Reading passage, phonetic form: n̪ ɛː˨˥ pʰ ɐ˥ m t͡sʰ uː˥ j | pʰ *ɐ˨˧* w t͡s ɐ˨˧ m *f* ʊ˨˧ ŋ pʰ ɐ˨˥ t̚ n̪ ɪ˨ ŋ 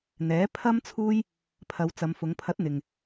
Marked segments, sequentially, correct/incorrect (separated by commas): correct, correct